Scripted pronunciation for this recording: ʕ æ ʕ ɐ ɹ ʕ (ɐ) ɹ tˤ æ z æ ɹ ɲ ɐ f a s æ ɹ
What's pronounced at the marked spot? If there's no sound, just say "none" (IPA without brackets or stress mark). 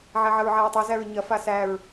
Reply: a